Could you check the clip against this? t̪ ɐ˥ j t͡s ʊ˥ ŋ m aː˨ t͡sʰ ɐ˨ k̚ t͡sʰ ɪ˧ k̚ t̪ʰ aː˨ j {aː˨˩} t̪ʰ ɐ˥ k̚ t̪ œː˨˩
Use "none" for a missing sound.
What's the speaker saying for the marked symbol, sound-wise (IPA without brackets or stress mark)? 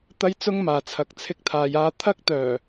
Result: aː˧